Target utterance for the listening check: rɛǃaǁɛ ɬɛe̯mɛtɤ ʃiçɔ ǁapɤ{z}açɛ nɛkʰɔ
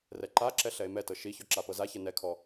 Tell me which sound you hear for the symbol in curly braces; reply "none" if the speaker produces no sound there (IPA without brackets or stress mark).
z